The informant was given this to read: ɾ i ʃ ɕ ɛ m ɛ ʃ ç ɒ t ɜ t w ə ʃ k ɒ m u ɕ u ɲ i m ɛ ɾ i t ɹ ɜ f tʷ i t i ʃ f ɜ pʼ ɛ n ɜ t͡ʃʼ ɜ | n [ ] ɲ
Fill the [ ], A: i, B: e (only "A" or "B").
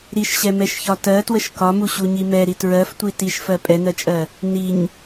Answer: A